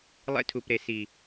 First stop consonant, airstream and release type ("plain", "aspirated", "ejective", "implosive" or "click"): aspirated